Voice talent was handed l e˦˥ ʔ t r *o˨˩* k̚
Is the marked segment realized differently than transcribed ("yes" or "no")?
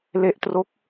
yes